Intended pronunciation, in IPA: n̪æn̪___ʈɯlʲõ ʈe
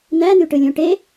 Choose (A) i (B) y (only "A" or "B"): B